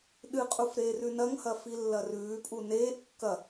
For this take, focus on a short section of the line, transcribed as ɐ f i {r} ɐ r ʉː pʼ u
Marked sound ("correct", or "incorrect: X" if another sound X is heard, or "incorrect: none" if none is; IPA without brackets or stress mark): incorrect: lː